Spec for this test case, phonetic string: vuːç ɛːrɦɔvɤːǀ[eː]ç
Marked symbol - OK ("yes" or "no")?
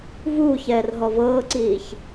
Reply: no